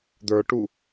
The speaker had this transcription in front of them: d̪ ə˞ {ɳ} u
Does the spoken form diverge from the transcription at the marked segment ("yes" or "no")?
yes